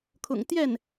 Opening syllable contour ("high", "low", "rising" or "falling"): low